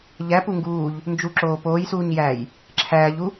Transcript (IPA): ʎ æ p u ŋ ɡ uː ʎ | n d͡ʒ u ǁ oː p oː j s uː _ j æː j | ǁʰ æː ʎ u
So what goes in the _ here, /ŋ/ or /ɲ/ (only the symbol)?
ɲ